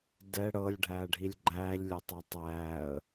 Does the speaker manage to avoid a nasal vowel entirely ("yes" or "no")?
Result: yes